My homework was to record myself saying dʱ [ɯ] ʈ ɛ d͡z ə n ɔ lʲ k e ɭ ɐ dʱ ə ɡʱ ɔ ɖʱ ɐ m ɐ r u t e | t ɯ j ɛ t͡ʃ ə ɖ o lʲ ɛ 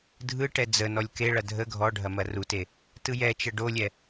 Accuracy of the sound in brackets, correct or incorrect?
correct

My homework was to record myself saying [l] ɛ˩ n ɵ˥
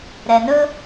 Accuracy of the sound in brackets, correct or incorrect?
incorrect: ɾ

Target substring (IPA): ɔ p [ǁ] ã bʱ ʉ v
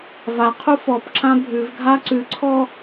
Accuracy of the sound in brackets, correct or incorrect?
correct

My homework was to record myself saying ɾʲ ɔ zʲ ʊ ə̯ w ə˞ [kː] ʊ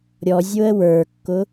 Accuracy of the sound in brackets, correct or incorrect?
correct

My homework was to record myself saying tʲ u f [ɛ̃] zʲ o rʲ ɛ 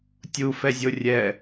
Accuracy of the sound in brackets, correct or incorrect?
incorrect: ɛ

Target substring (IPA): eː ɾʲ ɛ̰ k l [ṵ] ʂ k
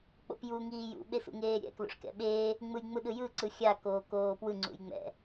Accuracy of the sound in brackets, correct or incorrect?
incorrect: o̰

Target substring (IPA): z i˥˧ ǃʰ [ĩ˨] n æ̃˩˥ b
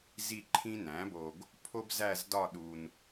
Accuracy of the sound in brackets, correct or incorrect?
incorrect: ĩ˥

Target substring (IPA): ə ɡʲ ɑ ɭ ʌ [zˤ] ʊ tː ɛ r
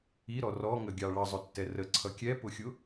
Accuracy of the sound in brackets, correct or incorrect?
correct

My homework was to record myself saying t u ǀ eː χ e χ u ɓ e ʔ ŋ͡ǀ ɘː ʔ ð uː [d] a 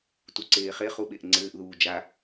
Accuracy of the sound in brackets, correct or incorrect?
incorrect: d͡ʒ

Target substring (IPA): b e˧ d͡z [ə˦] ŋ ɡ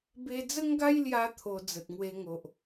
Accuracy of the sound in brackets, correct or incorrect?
correct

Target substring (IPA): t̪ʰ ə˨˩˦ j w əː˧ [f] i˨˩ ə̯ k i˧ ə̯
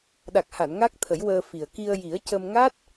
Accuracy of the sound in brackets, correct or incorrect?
correct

